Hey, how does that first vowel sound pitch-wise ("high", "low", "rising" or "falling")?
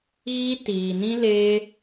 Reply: high